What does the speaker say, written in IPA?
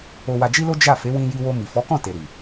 o˧ w a˧ d͡ʒ i˦ l o˦ d͡ʒ a˦˨ f e˨˦ w ĩ˧ j i˧ w o˧ m i˨ f ɔ˨˦ k ɔ̃˦˨ t e˨ ɾ i˨

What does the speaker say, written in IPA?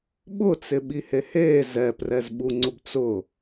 ɓ ʊ t͡s ɪ ɓ i h e h eː z ɛ p r ɛ z ɓ u ŋ͡ǀ ʊ b t͡s ʊ

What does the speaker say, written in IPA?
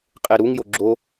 qʼ e ɾ u ŋ j o ɡ͡ǁ o

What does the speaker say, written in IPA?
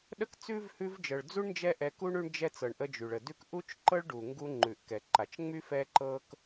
ɗ ə˥ k t͡s ʉ˥ v h ʉ˦ v d͡ʒ ɤ˨ ɭ d͡z u˥ ɳ n d͡ʒ ɛ˦ ʔ ɛ˨ k u˥ ɳ ʉ˦ ɳ d͡ʒ ɛ˦ t͡s ɤ˨ ɳ ʔ ə˥ d͡ʒ y˩ ɭ ə˩ d ʉ˦ k ʔ u˥ t͡ʃ ǃ ɤ˥ ɭ ɖ u˩ ŋ ɡ u˦ ŋ͡ǃ ʉ˩ ʔ k ɛ˩ ǃ a˩ t͡ʃ ŋ͡m y˥ f ɛ˥ ǃ ɤ˥ k

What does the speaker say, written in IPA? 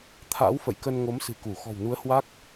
t̪ʰ a̰ː˧˥ w f ə̰˧˨ j k ə˧ n ŋ o˨˦ m s ɨ̤˨˩ k u˧˩ x ɔ̤˨˩ w n u˨˦ ə̯ h w a˦˥ k̚

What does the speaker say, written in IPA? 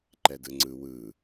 ǃ ɛ d ɯ ŋ͡ǀ ɯ w ɯ

